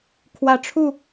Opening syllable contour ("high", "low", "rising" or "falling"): low